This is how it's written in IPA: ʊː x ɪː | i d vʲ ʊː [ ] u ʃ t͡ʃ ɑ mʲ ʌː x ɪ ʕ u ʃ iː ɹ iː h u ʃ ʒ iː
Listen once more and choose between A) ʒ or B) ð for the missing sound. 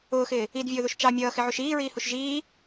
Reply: B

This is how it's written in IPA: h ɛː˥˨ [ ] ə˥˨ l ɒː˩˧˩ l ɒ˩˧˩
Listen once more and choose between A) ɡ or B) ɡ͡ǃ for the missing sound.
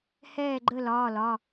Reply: B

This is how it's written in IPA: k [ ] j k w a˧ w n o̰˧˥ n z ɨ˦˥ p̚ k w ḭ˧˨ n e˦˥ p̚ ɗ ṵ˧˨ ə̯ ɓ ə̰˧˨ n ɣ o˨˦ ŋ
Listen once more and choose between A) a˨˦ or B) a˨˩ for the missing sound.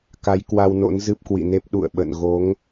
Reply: A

